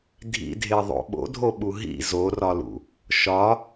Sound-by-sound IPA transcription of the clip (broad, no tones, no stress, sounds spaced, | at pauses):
dʱ ḭ dʱ e ðˤ o̰ ɓ o̰ dʱ o ɓ u ɦ ḭ z o r ɒ l ṵ | ʃ ɒ